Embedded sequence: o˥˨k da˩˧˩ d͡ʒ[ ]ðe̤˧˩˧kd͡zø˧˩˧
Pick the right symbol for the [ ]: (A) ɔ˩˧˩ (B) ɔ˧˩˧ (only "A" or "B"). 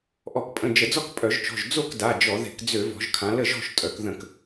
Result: B